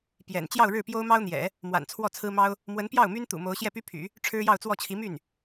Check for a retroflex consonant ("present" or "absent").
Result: present